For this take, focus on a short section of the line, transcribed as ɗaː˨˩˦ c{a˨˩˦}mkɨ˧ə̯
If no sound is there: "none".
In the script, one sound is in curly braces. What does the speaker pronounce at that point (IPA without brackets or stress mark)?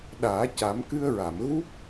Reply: a˨˩˦